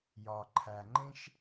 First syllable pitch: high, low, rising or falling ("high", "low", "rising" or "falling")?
low